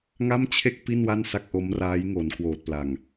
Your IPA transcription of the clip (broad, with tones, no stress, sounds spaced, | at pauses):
ŋ a˥˩ m t͡ɕʰ e˥˩ k̚ p i˥˩ n w a˥˩ n s a˥˩ k̚ ʔ o˦˥ m r aː˦˥ j ŋ o˩˦ n k w oː˨˩ t̚ p l a˨˩ ŋ